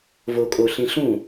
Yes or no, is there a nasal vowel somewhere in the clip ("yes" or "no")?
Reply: yes